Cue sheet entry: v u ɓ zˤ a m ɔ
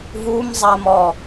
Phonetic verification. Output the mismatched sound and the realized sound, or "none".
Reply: ɓ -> m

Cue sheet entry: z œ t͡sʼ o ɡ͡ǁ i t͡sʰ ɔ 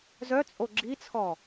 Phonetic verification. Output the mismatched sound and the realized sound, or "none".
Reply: none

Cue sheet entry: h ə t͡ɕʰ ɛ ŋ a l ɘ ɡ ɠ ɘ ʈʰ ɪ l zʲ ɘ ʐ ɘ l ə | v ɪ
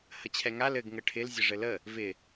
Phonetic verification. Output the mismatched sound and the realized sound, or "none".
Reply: ɠ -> ŋ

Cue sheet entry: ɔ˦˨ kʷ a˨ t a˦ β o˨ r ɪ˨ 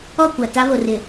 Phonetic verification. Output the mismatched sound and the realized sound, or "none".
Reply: none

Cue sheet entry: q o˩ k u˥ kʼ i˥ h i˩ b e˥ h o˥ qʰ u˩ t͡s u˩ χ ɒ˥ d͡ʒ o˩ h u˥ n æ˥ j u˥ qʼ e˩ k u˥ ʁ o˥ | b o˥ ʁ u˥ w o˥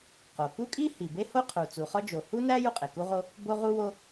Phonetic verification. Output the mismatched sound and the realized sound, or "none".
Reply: none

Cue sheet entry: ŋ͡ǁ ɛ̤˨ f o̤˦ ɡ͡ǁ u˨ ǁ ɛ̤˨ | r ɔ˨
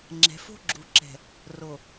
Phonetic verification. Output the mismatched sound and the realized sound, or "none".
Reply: ɔ˨ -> o˨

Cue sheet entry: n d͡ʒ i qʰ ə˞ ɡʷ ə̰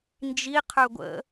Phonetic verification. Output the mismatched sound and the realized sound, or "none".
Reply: none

